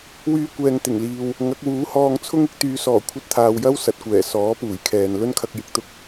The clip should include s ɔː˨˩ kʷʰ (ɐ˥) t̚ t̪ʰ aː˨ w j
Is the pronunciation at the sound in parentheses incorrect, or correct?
incorrect